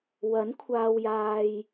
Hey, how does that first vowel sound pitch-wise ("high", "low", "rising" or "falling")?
rising